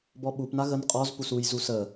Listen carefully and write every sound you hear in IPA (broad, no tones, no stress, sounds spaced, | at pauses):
b ɔ ɓ u p n a ɣ ə n qʼ ɔ z p u s u j z u s ə